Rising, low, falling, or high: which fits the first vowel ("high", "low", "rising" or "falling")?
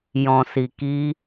low